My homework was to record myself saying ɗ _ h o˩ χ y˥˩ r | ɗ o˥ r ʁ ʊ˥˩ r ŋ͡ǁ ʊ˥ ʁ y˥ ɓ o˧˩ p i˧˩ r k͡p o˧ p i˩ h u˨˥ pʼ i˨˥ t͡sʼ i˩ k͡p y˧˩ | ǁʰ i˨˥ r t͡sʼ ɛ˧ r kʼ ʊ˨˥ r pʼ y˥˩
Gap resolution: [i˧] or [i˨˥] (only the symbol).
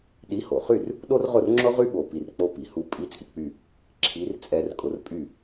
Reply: i˨˥